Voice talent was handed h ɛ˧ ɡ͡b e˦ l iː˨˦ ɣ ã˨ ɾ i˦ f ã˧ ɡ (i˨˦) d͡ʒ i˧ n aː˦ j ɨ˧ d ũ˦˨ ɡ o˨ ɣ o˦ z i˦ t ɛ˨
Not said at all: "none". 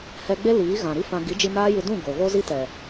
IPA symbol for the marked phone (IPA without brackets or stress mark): i˨˦